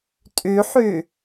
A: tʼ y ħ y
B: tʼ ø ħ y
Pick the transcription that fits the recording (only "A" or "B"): A